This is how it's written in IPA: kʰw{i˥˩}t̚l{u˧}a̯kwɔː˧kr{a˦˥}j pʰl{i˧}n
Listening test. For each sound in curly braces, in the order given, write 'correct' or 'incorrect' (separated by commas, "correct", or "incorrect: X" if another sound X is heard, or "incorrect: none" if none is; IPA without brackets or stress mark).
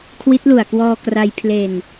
incorrect: i˦˥, incorrect: u˨˩, incorrect: a˧, incorrect: e˧